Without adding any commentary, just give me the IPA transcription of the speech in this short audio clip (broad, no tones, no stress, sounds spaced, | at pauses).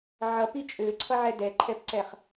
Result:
ʕ ʌ p i t͡ʃʼ ø ǀʰ ʌ ʕ ɛ d ɛ ǃʰ ɛ p ǀ ɛ χ